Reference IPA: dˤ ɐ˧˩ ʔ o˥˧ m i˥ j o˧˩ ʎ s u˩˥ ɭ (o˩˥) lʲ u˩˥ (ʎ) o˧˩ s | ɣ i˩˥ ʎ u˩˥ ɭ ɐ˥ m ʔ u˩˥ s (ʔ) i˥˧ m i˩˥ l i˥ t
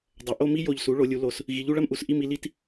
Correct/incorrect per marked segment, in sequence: correct, incorrect: l, correct

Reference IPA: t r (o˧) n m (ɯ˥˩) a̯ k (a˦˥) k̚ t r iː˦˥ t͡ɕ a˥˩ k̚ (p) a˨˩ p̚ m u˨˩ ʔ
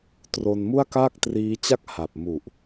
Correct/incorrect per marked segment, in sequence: correct, incorrect: u˥˩, incorrect: a˥˩, incorrect: h

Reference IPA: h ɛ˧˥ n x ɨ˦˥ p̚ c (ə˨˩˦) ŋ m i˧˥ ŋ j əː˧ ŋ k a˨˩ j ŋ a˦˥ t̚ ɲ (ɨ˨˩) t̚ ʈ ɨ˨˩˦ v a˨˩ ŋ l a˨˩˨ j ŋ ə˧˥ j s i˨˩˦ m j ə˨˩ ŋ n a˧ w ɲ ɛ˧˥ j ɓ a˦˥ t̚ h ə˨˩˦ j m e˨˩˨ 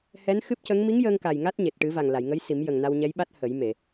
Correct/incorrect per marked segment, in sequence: incorrect: ə˧˥, incorrect: e˨˩

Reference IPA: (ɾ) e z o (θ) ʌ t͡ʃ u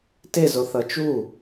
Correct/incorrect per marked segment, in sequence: incorrect: t, correct

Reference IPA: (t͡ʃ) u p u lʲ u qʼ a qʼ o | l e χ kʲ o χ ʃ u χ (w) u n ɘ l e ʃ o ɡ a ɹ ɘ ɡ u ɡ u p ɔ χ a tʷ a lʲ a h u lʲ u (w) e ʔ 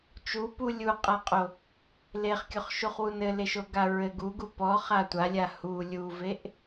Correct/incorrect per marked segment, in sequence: correct, correct, incorrect: v

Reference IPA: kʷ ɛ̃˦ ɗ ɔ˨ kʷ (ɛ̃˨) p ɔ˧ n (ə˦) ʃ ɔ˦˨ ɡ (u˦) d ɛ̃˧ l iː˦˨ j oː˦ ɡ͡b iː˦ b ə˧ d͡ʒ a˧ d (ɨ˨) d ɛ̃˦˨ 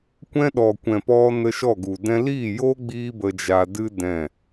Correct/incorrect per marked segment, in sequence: correct, incorrect: ə˧, incorrect: u˨, incorrect: ɨ˦

